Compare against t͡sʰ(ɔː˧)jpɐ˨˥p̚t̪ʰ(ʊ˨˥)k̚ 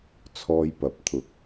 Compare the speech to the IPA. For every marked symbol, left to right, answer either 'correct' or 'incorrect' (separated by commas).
correct, correct